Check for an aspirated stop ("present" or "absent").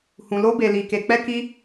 absent